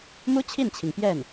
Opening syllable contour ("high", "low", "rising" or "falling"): high